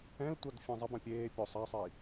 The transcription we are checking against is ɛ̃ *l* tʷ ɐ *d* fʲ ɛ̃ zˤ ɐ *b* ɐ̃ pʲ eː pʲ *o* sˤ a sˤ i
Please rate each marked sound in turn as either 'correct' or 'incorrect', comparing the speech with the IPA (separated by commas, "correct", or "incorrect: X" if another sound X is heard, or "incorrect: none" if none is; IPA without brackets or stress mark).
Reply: correct, correct, correct, correct